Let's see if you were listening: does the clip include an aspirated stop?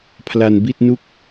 yes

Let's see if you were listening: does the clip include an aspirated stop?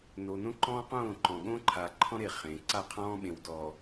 yes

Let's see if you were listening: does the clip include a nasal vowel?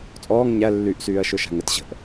no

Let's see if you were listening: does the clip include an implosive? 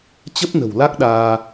yes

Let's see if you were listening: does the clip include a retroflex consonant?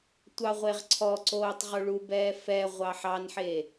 yes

